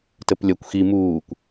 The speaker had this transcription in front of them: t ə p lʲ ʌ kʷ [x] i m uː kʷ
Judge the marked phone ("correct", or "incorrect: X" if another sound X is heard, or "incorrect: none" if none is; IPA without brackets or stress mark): correct